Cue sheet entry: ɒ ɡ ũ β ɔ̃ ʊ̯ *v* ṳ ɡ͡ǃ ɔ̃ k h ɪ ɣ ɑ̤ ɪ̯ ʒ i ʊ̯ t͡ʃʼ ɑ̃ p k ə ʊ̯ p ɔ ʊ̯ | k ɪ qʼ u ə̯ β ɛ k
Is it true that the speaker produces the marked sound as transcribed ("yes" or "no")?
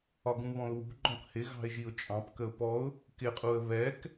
no